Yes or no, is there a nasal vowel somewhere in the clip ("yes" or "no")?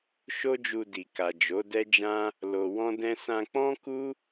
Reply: yes